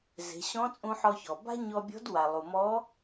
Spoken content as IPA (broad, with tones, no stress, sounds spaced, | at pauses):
z e̤˩˧ ɕ ɔ̃˧˥ t͡sʼ ũ˧ ħ ɔ˧ ç ɔ˩ b a̤˥ ɲ ɔ˧ bʲ ɔ̤˧˥ d w a˩ lˠ u˩ m ɔ˧˥